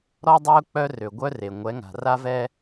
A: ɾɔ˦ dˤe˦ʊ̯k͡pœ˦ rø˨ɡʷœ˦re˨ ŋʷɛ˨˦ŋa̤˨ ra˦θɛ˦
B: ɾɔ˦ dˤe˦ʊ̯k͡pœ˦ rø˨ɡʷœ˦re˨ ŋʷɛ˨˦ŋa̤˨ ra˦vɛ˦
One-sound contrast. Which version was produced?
B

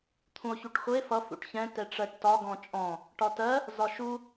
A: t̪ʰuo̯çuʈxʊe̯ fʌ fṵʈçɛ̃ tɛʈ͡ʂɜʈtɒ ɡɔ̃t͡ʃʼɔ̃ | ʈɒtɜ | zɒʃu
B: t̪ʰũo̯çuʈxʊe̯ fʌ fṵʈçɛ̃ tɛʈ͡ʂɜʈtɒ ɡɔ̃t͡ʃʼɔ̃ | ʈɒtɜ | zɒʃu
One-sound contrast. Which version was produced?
B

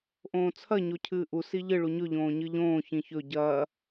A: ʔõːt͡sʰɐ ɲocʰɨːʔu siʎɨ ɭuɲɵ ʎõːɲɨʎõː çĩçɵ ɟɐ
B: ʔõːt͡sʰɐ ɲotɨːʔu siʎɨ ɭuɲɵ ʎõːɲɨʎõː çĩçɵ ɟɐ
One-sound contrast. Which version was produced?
A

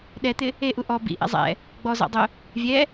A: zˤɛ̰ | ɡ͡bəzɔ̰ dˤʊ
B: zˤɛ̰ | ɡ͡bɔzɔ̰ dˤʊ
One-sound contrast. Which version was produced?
B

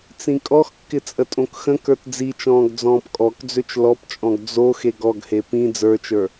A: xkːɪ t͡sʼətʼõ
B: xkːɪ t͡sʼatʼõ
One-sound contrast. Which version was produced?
A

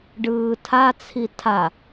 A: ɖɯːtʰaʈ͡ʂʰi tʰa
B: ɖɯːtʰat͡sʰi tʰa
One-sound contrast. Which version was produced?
B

